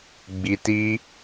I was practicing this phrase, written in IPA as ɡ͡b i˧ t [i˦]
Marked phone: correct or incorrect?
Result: correct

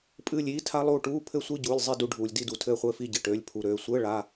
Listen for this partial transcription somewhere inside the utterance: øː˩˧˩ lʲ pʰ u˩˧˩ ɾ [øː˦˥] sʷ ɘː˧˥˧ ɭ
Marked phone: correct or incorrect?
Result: incorrect: øː˩˧˩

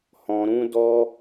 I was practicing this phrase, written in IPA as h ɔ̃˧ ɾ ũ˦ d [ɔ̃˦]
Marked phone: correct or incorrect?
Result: incorrect: ɔ˦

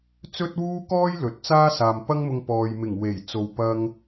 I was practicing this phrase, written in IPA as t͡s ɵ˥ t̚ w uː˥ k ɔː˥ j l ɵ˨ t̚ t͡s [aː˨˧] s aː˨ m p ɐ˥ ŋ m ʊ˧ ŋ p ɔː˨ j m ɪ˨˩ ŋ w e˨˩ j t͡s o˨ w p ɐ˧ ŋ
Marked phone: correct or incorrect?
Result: incorrect: aː˥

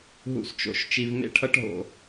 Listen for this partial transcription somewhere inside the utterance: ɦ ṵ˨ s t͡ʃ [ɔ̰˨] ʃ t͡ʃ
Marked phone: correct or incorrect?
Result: incorrect: o̰˨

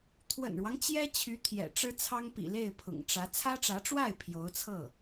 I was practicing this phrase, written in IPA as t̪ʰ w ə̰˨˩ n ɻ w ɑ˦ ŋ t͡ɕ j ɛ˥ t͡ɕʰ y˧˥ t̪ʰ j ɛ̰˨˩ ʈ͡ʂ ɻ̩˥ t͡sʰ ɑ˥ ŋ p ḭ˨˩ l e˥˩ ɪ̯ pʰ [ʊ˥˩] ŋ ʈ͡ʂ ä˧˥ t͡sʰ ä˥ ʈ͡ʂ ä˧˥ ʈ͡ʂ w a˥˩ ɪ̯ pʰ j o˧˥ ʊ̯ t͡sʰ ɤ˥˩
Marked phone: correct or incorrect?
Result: incorrect: ʊ̰˨˩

